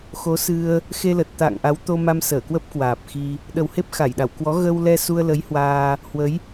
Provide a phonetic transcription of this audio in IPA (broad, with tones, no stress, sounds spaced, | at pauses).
x o˨˦ s ɨ˧ ə̯ | x e˧ l ə˨˩ t̚ t̪ a̰˧˨ ŋ ʔ a˨˦ w t̪ o˧ m a˧ m s əː˧˩ k w ə˦˥ p̚ k w aː˨˩ p̚ x i˧ | ɗ ə˨˩ w h e˦˥ p̚ x a˧˩ j ɗ a˧˩ w k w ɔ˨˦ ɣ ə˧ w l ɛ˧ s u˧ ə̯ l ə˨˦ j h w aː˧ | h w ə˨˦ j